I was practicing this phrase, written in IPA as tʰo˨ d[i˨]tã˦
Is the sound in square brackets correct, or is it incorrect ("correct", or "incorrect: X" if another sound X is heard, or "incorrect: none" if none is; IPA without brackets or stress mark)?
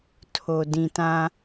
incorrect: ĩ˨